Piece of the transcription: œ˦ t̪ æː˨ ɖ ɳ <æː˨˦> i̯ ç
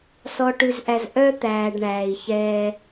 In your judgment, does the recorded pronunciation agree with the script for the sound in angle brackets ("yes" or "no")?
no